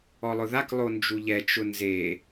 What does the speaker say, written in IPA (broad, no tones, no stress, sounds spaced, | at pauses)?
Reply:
ɔ lˠ ʊ ð a k lˠ o n d͡ʒ u ʎ ɛ t͡ʃ ʊ n z e